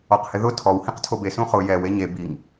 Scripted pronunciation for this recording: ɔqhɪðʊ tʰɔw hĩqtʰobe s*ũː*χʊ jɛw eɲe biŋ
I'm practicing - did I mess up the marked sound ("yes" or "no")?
yes